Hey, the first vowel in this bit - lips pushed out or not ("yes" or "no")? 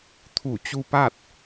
yes